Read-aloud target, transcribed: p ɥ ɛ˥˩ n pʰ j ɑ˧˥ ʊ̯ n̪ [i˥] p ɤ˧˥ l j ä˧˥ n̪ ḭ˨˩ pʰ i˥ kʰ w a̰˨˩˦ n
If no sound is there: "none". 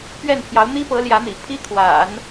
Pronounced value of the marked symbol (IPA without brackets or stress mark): i˥